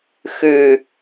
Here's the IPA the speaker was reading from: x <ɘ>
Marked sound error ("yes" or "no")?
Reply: yes